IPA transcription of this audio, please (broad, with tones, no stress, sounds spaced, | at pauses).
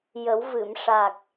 j ə˨˩˦ w v ɨ˨˩˨ m ʂ a˨˩ k̚